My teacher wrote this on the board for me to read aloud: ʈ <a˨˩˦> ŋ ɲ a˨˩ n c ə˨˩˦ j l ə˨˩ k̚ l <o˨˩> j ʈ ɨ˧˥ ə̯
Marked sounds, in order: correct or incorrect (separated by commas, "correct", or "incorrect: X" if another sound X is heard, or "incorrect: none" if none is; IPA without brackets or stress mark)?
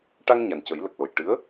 incorrect: a˧, correct